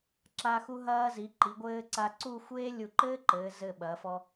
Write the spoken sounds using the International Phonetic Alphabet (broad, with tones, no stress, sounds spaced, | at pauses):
ǁ a˧ x u˧ ɦ ɐː˧ z i˩˧ ǃ i˩˧ ɡʷ ɘː˧ ǀ a˧ ǀ u˥˧ xʷ eː˥ lʲ u˧˩ ǃ ɘː˥ ǃ ɘː˩˧ z ɘ˧˩ ɓ ɐː˩˧ f ɔ˧